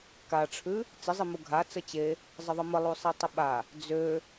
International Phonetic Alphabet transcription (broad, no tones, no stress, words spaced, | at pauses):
kaʈ͡ʂʰʉ | t͡sɪzˤimu ɡʱa t͡sət͡ɕe | zˤəðˤəməlˠu sˤetˤəɓa | d͡zø